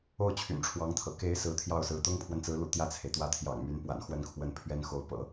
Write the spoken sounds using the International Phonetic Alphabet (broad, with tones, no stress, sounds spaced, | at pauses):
o˥˩ ʊ̯ t͡ɕʰ y̰˨˩ n ʈ͡ʂʰ w ɑ˧˥ ŋ t̪ʰ ɤ̰˨˩ k e˧˥ ɪ̯ s ɹ̩˧˥ t̪ʰ j ɑ˥˩ ʊ̯ s ɹ̩˧˥ t̪ ʊ˥ ŋ pʰ w ə˨ n t͡s ɹ̩˧˥ l ṵ˨˩ t̪ j ä˥˩ t͡sʰ e˩ ɪ̯ t̪ w ä˥˩ t̪ʰ j ɑ̰˨˩ ŋ m y˧˥ n p w a̰˨˩ n x w ə˥˧ n kʰ w ə˥˩ n pʰ ɥ ɛ˥ n x o˧˥ ʊ̯ p ɤ̰˨˩˦